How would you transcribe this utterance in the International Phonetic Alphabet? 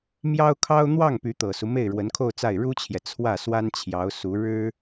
mjɑ˥ʊ̯kʰɑ˥ʊ̯ n̪wɑ˥˩ŋ py˧˥t̪ɤ˨˩su˦ me˥˩ɪ̯ɻwə˧˥nkʰo˥˧ʊ̯t͡sa˥˩ɪ̯ ɻu˥t͡ɕʰjɛ˨ t͡sʰwä˥˩swa˥nt͡ɕʰjɑ˧˥ʊ̯ su˧˥ɻɻ̩˥

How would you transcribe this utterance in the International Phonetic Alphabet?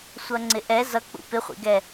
sʷʌŋ͡ǀɪʔɛ zʌk͡pṵ pɪχʷḭɡɛ

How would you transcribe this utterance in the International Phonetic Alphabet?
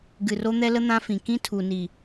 ɡɨ˨ro˦n̪ɛ˦lə˦ n̪ã˦fĩ˨ kĩ˦tʰu˨ni˨

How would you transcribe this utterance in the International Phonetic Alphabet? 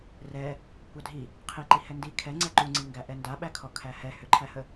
rɛ | kʷadʱi | qʰiǃi hɛndi kʰɛ ŋ͡ǀɛǃuŋ͡ǀiŋɡæ ʔɛndaɓækʰɔ kʰæhɛ hʏǃʰæhə

